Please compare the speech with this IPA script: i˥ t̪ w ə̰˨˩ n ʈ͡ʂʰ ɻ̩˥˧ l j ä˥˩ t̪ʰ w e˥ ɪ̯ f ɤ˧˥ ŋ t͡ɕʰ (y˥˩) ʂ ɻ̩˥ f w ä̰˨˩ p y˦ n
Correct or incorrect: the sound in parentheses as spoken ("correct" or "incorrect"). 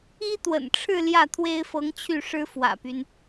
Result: correct